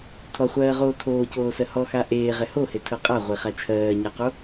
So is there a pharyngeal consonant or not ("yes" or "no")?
no